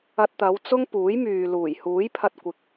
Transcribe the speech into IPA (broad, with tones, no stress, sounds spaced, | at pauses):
ɐ˧ t̚ t̪ ɐ˨˧ w t͡s ʊ˥ ŋ p uː˨˥ j m yː˨ l uː˨˩ j h uː˨˥ j pʰ ɐ˧ t̚ kʷ ɪ˨˥ k̚